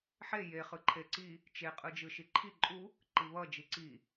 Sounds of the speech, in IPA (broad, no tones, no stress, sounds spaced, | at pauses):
ħ e j e χ ɯ ǃʰ e ǀ i | t͡ʃ e qʼ ɯ d͡ʒ ɯ ʃ i ǃʰ i ǃʼ u | ǃ i β ʌ d͡ʒ i ǀ i